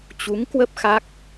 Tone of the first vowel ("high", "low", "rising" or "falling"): rising